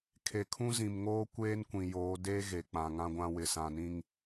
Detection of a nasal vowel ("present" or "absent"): present